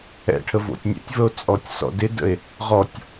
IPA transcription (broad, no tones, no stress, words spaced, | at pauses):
ɛ̰ʈʰə vo̰tʲnʲɛ̰tʲvəo̯ t͡sʼɔtʲsɔ̰dɪdə̰e̯ | ʁɔtʲ